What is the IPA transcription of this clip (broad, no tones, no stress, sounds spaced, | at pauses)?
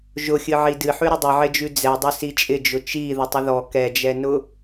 ʒ ʊ xʲ ɨ ʕ i d ɨ ħ ʉ ɾ ʊ dˤ ɨ ʕ ɪ d͡ʒ ʉ d͡z ɛ dˤ ʊ s i t͡ʃʼ ɪ d͡ʒ ʊ t͡ʃ i ð ʊ tˤ ɪ ð ɔ k ɛ d͡ʒ ɛ n ʊ